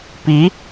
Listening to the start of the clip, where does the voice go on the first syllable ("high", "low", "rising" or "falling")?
rising